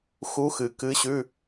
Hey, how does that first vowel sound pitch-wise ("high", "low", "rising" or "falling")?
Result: rising